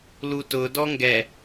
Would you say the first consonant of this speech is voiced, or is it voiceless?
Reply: voiced